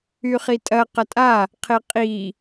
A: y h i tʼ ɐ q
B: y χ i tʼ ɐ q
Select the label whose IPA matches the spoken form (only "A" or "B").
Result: B